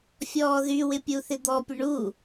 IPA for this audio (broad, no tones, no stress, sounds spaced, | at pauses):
fʲ ɔː ð y w ɪ pʲ u θ ɪ d̪ ɔ pʲ ə ɳ u